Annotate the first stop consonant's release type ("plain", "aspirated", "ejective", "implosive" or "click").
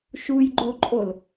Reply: click